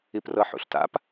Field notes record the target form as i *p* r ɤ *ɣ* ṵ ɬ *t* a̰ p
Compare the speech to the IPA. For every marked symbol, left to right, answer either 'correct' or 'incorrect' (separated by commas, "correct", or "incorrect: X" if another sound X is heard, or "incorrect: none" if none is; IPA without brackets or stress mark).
correct, incorrect: ħ, correct